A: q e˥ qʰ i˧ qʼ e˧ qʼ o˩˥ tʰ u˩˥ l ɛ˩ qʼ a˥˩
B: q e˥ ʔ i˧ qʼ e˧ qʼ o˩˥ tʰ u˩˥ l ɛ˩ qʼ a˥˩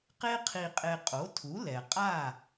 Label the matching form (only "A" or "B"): A